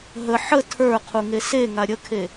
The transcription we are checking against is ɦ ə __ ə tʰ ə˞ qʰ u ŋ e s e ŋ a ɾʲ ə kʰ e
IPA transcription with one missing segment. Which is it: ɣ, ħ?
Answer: ħ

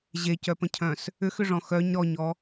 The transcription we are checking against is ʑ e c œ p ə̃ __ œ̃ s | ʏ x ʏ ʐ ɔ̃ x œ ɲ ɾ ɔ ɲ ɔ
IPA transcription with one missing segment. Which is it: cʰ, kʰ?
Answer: cʰ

